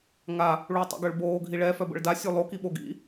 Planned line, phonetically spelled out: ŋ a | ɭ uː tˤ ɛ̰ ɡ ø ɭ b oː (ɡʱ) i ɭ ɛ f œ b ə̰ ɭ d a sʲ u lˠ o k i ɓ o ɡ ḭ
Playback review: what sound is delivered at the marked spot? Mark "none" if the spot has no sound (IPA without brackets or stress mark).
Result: ɡʱ